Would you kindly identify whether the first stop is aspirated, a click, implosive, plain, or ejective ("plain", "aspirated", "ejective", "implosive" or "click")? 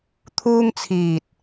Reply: aspirated